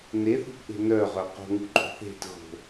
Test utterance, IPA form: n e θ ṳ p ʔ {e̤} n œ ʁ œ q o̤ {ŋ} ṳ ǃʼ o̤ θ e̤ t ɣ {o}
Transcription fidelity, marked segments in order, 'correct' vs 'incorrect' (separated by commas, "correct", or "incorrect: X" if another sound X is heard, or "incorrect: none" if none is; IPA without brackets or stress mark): correct, correct, incorrect: o̤